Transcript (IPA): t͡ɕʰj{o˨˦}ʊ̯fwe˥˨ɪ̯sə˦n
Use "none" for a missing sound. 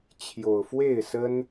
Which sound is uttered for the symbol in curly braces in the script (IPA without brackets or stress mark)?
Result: o˨˩